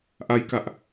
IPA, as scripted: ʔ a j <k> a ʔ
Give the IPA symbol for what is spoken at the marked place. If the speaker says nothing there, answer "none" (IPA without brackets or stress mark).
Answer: k